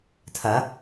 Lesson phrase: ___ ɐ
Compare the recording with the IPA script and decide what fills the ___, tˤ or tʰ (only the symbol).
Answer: tʰ